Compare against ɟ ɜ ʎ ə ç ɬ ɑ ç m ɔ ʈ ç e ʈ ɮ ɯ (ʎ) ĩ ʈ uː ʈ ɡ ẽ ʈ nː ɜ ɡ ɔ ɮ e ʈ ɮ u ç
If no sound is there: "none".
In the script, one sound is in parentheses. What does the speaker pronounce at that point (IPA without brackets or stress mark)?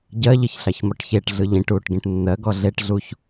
ʎ